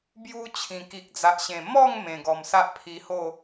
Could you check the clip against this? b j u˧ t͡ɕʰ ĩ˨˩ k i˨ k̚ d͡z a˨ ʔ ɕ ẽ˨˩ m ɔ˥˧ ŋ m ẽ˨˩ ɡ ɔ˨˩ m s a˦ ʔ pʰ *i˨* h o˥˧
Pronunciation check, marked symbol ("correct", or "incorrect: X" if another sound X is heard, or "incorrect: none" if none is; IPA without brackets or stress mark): incorrect: i˧